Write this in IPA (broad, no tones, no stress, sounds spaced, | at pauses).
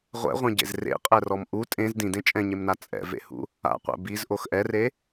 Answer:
ʁʷ ɛ̰ ʁʷ ẽ ɟ ḛ z r ḛ qʼ ɛ r ɔ m ʔ u tʼ ẽ z d ĩ d ẽ t͡ʃʼ ɛ̃ ɲ e m n a t͡sʼ ɛ̰ v ḛ h ṵ | a̰ qʷ ɛ̰ b i z ʔ o x ʔ ɛ r e